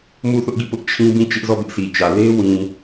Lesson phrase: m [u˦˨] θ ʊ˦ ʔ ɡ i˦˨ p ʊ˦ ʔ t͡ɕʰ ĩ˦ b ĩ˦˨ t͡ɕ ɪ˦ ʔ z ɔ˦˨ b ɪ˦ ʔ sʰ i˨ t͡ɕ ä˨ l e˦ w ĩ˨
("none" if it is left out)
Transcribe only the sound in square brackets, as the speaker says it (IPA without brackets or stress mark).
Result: u˦˨